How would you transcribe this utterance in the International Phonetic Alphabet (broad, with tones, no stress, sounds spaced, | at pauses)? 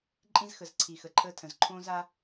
ǃʼ ĩ˦ z x ə˨ z ǀʰ i˨ x ə˨ ǃʰ əː˦ tʰ ə̃˨ z ǃʰ õː˦ z a˦